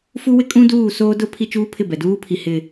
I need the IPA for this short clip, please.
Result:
f u˦ w ɪ˦ kʼ ũ˦ d uː˦˨ s oː˦ d ʊ˦ pʰ i˦ t͡ʃ uː˦ pʰ ɪ˦˨ b ɛ˨ d uː˦ pʰ i˨ h ɪ˨

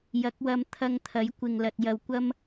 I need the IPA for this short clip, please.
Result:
j ɐ˨˥ k̚ w ɐ˧ m t̪ʰ ɐ˧ ŋ t̪ʰ ɐ˨˥ j kʷ ɪ˨ ŋ l ɐ˨ t̚ j ɐ˨ w kʷ ɐ˥ m

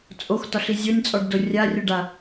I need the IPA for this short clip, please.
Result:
t͡sʼ o x t ɒ ɬ i zʲ o nʲ t͡sʼ ɔ ɖ d o rʲ a rʲ o ɖ a

